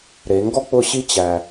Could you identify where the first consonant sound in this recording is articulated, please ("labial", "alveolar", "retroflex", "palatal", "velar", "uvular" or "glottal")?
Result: alveolar